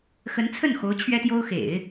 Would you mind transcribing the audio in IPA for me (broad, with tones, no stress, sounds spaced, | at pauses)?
x ə˧˥ n t͡sʰ ə˥˩ n x o˧˥ ʊ̯ t͡ɕʰ ɥ ɛ˥ t̪ j o˥ ʊ̯ x ḛ˨˩˦ ɪ̯